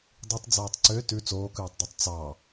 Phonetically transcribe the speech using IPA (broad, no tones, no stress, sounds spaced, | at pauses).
dˤ i tˤ d͡z oː tˤ ǀ ø t ʉ t͡s oː k ʉː tˤ dˤ u tˤ t͡s ɑ